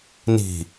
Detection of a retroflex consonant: absent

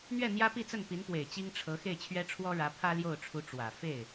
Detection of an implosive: absent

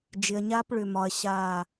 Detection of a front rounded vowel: present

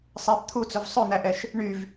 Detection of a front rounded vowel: present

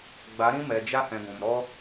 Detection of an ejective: absent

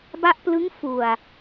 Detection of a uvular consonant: absent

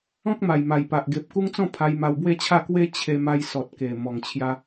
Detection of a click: absent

